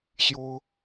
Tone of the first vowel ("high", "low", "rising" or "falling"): high